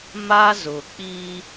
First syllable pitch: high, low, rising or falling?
high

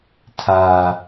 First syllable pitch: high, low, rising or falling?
high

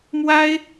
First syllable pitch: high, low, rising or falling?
high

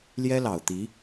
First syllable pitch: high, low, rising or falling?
high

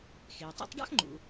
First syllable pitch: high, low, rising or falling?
low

